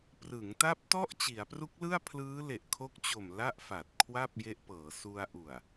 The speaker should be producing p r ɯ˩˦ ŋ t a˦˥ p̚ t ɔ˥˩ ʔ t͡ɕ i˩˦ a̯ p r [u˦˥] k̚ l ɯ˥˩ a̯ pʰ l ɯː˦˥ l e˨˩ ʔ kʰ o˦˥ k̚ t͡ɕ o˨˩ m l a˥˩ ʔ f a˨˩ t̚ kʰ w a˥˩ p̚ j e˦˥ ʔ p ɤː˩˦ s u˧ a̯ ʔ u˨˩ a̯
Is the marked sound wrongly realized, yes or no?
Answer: no